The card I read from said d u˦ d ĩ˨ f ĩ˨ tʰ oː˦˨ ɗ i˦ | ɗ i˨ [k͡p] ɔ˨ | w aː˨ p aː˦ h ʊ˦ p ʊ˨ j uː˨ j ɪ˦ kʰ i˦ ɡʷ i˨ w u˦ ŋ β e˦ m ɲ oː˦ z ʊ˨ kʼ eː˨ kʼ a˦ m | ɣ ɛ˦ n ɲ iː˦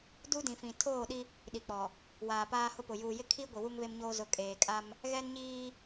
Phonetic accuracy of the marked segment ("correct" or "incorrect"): correct